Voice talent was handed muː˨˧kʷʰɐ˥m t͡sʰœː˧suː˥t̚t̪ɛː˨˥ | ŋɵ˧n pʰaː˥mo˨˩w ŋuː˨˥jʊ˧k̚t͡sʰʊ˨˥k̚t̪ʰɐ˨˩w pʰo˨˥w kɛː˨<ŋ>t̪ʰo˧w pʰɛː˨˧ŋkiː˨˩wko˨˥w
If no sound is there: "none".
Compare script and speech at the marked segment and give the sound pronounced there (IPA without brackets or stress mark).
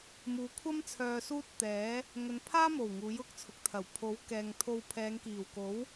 ŋ